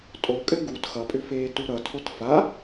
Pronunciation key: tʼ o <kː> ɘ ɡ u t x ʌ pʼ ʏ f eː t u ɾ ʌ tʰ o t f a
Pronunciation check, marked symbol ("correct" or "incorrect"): incorrect